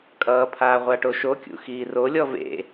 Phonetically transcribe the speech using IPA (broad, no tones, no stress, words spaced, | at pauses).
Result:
kʼʌːpʰaː ʁʷaʈoʃokʲṵ xiːrolʲɔ vḛ